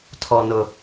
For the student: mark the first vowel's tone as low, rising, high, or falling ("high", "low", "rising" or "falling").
high